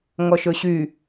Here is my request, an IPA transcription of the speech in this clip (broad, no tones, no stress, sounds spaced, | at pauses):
ŋ ɔ ʃ ɵ ɕ y